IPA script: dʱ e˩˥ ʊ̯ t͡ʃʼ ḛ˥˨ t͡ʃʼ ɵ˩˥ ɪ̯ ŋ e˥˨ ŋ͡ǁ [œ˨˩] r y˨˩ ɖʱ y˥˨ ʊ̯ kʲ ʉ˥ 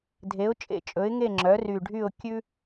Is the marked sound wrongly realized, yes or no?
yes